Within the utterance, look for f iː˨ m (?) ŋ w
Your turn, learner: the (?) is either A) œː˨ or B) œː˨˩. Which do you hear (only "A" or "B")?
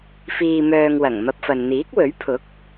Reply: A